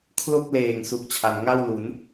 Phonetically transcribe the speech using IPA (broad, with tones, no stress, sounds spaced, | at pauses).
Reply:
kʰ l o˥˩ k̚ l eː˨˩ ŋ s u˨˩ k̚ t͡ɕʰ a˩˦ n ŋ a˥˩ w l u˩˦ n